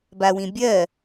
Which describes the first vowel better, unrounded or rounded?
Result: unrounded